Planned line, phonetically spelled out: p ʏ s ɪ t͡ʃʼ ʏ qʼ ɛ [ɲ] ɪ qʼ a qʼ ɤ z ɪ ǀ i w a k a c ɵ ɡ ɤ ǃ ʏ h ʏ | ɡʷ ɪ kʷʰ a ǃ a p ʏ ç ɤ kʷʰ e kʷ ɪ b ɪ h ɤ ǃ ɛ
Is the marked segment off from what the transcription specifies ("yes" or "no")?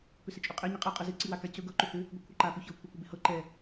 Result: no